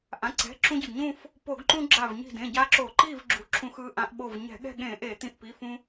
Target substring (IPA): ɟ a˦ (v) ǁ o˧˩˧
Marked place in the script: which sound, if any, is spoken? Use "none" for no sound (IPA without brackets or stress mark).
none